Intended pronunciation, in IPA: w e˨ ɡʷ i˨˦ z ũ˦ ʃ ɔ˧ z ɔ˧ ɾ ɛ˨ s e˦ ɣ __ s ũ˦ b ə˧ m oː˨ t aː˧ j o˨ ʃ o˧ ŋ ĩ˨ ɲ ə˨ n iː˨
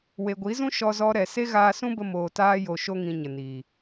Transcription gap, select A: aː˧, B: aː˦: A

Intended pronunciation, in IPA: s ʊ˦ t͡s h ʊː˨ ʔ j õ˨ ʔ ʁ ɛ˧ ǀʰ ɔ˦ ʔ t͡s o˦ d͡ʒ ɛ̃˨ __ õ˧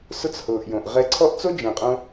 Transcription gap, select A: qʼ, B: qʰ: A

